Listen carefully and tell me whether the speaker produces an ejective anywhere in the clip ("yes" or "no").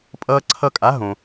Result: yes